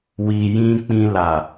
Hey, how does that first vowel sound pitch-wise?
low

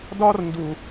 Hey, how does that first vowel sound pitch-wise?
high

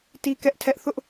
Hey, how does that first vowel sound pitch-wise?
high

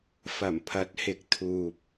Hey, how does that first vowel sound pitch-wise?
low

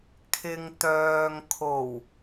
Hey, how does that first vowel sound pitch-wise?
low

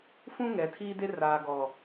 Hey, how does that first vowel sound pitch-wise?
high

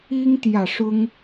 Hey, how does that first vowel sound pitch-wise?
high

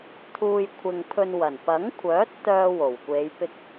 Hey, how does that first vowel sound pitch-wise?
low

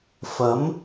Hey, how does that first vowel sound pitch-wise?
rising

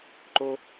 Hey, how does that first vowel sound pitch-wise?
high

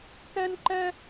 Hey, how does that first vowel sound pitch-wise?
high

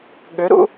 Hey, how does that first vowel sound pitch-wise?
rising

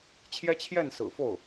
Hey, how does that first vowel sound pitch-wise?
high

